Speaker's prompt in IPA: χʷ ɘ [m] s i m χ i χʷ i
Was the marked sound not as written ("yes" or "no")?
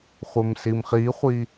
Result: no